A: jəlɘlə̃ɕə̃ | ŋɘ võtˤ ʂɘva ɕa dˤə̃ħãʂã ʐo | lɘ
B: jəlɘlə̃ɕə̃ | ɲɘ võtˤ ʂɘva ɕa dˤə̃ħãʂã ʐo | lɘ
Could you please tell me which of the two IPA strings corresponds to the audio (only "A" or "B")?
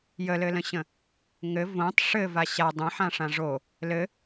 A